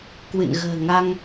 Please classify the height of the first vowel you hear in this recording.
high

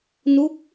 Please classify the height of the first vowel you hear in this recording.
high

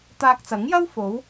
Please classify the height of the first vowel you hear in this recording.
low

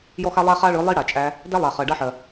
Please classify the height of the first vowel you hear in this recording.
mid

